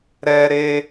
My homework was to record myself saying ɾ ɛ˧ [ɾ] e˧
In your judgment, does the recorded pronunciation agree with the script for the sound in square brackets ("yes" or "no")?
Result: yes